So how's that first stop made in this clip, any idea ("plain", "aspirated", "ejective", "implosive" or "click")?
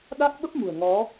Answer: implosive